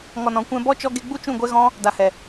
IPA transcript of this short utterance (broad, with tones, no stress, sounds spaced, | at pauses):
ŋ ɔ˨ n ɔ̃˨ kʷ ɛ̃˧ b ɔ˦ t͡ʃ ɔ˧ ɡ e˧ ɡ͡b u˦ t͡ʃ ũ˦˨ ɡʷ ɛ˦ ɣ ɔ̃˦ | d a˨ h ɛ˨